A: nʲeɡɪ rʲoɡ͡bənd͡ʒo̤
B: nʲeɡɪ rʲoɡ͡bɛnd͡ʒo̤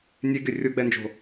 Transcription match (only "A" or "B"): B